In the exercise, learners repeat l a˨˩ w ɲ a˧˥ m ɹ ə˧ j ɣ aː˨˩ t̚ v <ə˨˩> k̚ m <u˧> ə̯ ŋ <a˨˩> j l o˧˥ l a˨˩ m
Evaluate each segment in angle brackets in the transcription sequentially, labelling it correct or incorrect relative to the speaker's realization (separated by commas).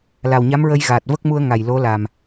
incorrect, correct, correct